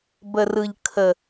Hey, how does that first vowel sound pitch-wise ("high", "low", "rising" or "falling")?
low